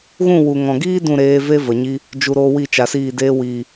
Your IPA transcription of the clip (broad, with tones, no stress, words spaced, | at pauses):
ɣũ˦˨wu˨ŋɔ̃˨ɡiː˦ dũ˦˨ɾeː˧ve˦ və˨ɲi˦ | d͡ʒu˨ɾoː˧ wi˦˨t͡ʃa˨siː˦˨ deː˧wiː˨